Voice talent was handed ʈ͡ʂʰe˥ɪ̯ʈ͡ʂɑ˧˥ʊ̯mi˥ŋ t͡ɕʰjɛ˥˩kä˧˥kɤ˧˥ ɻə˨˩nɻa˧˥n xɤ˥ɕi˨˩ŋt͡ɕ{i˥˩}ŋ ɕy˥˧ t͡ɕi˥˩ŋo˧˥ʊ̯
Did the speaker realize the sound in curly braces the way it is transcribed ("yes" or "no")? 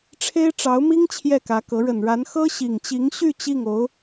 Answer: no